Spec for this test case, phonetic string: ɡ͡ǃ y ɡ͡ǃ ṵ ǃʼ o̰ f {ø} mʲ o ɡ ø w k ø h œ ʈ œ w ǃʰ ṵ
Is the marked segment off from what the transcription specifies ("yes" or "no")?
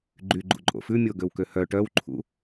yes